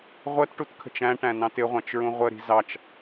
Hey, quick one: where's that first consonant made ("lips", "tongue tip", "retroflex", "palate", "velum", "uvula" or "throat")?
uvula